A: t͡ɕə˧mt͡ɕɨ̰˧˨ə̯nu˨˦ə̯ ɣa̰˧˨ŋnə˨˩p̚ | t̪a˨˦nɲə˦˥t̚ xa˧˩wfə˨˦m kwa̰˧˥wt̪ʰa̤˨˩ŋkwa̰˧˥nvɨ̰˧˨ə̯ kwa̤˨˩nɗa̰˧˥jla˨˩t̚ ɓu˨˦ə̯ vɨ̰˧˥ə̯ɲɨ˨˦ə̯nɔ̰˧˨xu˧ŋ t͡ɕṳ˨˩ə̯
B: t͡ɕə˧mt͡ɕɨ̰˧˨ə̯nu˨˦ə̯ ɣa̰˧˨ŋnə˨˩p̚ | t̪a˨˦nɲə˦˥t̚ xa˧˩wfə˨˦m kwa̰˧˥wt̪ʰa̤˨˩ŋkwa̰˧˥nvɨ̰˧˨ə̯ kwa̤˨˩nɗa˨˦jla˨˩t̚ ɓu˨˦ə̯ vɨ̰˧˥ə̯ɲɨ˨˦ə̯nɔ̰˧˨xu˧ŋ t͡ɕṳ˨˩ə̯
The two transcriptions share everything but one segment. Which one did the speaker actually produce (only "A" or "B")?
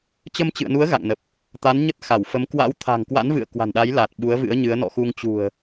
B